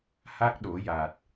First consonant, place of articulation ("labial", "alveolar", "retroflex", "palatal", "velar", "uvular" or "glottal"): glottal